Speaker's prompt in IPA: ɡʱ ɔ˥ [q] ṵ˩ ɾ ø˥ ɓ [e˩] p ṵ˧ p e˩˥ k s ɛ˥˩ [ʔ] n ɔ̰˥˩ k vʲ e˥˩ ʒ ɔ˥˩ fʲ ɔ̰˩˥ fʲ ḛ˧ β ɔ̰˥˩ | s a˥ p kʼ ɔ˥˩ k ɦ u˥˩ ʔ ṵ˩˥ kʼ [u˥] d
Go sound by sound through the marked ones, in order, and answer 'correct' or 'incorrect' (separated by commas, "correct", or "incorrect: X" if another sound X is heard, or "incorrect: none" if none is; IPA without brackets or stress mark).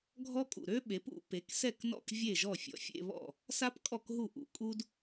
incorrect: kʼ, incorrect: e˩˥, incorrect: k, correct